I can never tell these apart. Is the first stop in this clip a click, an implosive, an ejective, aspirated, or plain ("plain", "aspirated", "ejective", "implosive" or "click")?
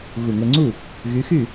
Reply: click